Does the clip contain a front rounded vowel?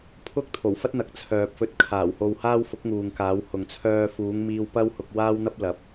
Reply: yes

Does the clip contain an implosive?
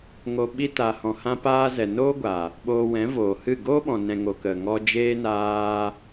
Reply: yes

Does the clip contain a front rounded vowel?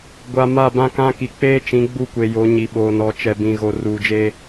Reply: no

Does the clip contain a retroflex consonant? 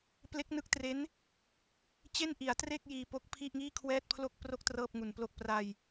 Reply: no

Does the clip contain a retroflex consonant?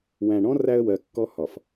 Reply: yes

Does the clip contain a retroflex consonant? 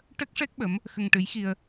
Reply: yes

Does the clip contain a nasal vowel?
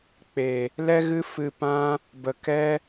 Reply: yes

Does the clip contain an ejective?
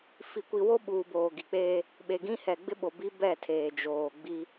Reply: no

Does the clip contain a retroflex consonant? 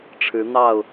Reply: yes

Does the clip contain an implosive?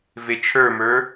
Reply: no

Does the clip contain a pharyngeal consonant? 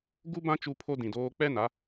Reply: no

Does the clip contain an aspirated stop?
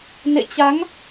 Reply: no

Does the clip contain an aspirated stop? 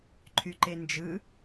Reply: yes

